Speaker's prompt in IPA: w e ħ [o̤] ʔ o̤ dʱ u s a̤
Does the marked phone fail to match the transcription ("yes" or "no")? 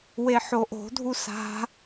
yes